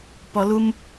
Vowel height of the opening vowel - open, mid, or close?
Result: mid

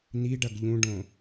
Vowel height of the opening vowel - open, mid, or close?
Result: close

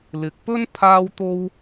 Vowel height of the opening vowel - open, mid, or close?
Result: close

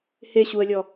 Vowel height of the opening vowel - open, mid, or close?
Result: mid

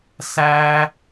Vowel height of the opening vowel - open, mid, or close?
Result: open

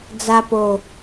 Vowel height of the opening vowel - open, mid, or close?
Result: open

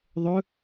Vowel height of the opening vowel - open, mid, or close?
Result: mid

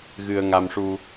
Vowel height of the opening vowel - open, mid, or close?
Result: close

